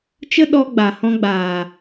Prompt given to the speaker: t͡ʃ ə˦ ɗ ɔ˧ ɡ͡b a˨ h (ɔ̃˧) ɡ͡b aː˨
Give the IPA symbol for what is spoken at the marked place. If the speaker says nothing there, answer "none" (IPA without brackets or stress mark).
ɔ̃˧